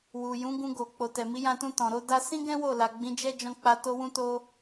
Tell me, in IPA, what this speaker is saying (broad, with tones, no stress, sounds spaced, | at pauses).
w u˨ j ũ˨˦ ɡ ũ˧ ɡ o˨ k͡p o˨ t ɛ˨ m i˨˦ j ã˧ t ũ˧ t ɔ̃˨ ɾ o˧ d a˦ s ĩ˦ ɡ ɛ̃˦ w o˦˨ l a˨ ɡ͡b ĩ˨˦ d͡ʒ ɛ˦ d͡ʒ ɔ̃˧ k͡p a˧ t o˧ w ũ˧ t o˦